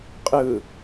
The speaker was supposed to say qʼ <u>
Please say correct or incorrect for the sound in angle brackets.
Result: incorrect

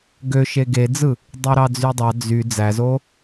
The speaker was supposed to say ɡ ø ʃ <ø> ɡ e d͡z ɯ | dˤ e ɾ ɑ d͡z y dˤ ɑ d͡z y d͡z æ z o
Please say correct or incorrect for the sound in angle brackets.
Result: incorrect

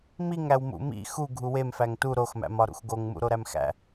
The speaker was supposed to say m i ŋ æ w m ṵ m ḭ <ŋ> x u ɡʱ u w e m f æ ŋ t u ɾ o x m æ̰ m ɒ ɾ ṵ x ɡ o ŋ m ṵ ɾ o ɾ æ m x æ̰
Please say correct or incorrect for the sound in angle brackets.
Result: incorrect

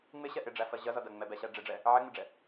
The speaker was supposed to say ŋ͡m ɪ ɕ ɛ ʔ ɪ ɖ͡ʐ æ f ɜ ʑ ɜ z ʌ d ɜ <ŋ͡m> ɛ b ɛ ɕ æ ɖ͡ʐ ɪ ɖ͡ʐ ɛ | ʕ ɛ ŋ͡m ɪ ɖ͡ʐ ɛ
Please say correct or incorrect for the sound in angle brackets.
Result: correct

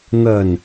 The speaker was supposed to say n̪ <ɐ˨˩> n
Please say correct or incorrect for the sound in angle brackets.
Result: correct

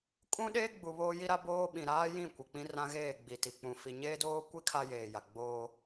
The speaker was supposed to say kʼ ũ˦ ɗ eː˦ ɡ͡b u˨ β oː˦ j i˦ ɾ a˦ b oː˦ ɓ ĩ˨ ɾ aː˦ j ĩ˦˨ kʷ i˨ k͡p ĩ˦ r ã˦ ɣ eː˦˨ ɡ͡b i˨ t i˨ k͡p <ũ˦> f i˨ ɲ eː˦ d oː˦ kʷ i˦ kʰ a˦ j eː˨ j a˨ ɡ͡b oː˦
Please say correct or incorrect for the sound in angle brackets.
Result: incorrect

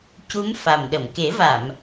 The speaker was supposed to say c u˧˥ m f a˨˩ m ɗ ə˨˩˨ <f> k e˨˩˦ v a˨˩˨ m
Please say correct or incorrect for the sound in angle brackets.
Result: incorrect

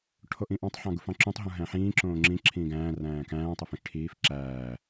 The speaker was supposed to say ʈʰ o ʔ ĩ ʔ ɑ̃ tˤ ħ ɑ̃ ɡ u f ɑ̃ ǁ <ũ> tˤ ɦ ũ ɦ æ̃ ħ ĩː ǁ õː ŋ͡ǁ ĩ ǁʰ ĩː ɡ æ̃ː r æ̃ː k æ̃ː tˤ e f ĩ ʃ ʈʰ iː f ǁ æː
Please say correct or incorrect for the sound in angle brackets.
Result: correct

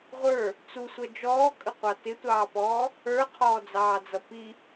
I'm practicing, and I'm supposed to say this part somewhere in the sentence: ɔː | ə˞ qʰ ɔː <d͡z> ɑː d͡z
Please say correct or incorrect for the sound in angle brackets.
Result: correct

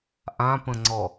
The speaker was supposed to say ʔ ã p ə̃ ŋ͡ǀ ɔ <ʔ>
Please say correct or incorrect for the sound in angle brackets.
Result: incorrect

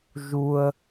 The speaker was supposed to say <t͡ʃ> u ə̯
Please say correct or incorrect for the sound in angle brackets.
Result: incorrect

